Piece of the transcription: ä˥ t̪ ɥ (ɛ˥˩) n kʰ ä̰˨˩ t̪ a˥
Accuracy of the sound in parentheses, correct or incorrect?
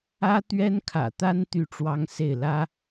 incorrect